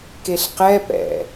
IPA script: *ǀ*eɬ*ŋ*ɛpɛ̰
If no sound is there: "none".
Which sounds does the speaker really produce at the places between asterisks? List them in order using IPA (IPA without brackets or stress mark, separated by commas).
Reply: k, q